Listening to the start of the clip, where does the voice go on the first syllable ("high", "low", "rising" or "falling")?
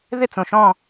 falling